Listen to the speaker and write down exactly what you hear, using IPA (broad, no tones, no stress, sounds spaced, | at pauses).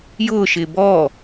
j ʊː ʃ ɪː b ɔː